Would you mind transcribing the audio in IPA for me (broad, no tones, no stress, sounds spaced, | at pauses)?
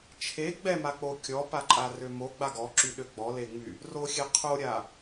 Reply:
t͡ʃʰ e ɡ͡b ɛ m a k͡p o kʲ ɔ p a ǃʼ a r ø m o ɡ͡b a ɡ ɔ ǁ y ɗ ø ɡ͡b ɔ l e ŋ͡m y | r o xʲ e qʰ o ɾʲ a